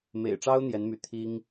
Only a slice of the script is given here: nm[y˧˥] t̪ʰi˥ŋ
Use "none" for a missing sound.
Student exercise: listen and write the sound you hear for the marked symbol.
y˧˥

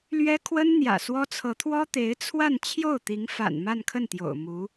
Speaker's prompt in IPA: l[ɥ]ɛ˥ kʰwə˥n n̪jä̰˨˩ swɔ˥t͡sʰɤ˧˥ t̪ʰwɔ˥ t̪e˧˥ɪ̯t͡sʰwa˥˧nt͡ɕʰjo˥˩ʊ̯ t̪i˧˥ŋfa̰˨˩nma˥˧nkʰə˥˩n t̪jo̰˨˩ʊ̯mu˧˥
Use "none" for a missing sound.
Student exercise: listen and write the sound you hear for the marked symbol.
ɥ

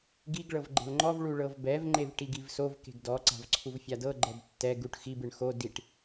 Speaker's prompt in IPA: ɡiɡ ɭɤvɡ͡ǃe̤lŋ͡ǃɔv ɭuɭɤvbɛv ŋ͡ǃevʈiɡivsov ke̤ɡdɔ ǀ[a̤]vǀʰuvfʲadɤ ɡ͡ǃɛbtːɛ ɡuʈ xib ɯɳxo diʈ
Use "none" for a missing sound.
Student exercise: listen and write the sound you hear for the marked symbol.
a̤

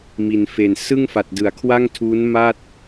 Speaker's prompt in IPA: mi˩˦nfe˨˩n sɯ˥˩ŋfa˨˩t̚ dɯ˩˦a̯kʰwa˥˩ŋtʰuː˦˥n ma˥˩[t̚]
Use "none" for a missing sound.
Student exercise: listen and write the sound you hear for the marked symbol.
t̚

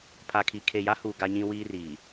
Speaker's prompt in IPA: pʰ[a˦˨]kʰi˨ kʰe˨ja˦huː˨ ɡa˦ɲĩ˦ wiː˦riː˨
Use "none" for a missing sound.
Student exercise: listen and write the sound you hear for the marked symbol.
a˨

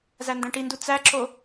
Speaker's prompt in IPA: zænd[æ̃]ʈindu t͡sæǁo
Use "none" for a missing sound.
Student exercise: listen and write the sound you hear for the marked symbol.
æ̃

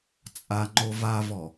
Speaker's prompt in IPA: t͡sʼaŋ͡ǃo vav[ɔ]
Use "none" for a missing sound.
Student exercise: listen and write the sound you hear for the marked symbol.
ɔ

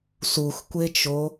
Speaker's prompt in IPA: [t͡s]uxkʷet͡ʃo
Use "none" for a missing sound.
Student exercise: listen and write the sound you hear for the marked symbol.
s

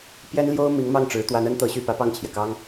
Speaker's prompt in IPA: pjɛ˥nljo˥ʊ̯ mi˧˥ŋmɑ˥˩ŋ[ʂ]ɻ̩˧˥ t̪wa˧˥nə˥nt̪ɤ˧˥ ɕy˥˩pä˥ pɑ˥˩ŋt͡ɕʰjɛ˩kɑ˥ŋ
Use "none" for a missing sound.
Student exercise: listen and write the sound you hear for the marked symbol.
ʈ͡ʂ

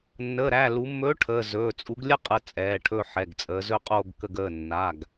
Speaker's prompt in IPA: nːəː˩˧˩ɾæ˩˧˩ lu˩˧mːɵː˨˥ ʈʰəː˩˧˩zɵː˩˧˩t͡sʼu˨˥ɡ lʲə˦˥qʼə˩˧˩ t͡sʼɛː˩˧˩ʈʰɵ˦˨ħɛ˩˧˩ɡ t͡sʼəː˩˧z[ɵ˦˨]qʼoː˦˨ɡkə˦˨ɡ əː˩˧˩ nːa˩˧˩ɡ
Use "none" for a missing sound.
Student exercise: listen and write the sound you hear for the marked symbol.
ɵ˦˨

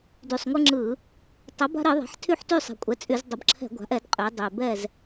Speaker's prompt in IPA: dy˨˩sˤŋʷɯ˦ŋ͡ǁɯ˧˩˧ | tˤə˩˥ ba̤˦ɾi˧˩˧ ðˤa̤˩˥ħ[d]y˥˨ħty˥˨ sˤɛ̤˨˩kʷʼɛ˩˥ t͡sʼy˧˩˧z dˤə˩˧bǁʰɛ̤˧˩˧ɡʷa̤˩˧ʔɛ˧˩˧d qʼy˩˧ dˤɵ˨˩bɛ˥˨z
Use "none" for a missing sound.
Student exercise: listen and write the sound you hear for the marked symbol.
tʰ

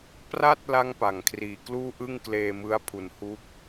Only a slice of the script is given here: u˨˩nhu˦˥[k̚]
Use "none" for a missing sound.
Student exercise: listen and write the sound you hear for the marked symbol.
k̚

